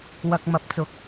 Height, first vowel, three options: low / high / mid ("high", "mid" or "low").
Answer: low